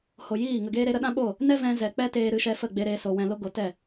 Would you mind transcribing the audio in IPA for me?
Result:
h o˨ j iː˦˨ ŋ ə˨ ɡ eː˧ ɾ e˧ ɾ ə˦ ɗ ã˦ ɓ o˦˨ | n ɛ˦ v ɛ̃˧ z ɛ˨ k͡p ɛ˦ t eː˧ ɾ ɨ˧ ʃ ɛ˧ f ə˦˨ ɡ͡b e˧ ɾ eː˧ s o˨ w ɛ̃˨ l o˧ ɡ o˨˦ t ɛ˦˨

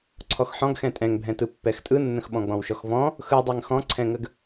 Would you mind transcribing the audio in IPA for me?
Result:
ǀʰ ɔ x ħ ɔ̃ ɡ x ɛ̃ tʼ ɛ̃ ŋ bʱ ɛ̃ t ɯ pː ɛ x tʼ ɯ nː ə̃ x ɓ ɔ̃ ɡ͡b ɔ̃ w ʃ ɔ x v ɔ̃ | x ɯ dˤ ɛ ŋ x ɔ̃ ǀʰ ɛ̃ ŋ ə ɡ

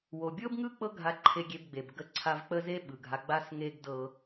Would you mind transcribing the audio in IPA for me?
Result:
w o˨ bʲ ɤ˦ b ŋ ɯ˦ k͡p ɤ˦ ɡʱ a˧ ǃʰ e˧ ɡʲ e˧ b ɡ͡b e˨ b ɡ ə˧ ǀʰ a˧ v k͡p ə˦ z e˦ ɓ ɯ˨ ɡʱ a˧ ɡ͡b a˦ s ŋ e˦ ɡ d ɤ˦

